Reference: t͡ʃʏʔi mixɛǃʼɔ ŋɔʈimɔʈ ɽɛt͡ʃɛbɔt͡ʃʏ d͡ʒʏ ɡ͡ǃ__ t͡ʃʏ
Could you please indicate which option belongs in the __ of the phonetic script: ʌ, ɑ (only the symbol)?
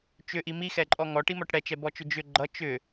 ʌ